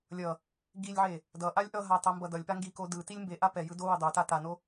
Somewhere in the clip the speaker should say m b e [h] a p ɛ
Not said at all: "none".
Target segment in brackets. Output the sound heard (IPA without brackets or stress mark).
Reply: ʔ